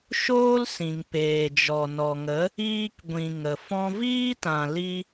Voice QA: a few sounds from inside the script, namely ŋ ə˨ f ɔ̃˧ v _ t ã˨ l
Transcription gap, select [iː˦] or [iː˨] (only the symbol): iː˦